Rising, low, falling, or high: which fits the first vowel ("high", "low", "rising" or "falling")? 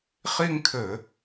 falling